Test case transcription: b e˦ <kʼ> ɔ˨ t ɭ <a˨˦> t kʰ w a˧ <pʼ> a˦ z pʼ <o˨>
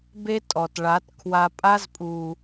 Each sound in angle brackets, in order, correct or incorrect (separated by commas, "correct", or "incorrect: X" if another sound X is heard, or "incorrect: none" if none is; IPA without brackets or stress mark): incorrect: tʼ, correct, correct, incorrect: u˨